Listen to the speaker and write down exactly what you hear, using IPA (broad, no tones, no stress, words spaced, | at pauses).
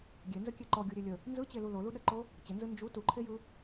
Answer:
ɡʲenzəkʲe ǃɔɡʲuɾʲe lʲə | nzɯt͡ɕelu loluɗəǃo | t͡ɕənzɯ nd͡ʒu tuǃʰejɯ